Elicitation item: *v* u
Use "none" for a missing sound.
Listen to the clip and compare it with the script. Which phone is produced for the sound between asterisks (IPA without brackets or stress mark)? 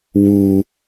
w